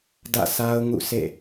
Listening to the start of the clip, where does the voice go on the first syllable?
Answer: falling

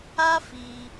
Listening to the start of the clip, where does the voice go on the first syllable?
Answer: high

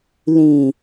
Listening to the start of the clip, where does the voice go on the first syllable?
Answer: low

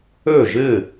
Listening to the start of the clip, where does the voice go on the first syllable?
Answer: falling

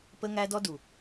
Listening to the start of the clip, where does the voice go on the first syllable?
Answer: high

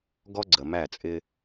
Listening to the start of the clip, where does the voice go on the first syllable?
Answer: high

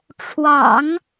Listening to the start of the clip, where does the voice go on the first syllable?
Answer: low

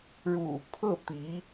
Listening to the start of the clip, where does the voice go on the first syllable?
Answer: low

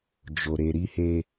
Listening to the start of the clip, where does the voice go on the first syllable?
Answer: low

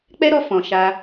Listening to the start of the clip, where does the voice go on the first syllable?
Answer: high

